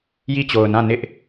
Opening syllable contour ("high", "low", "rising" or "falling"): falling